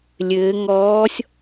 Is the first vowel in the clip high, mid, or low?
mid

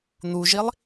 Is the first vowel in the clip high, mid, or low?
high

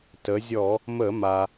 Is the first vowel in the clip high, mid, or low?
mid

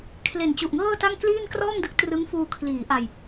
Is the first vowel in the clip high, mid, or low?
mid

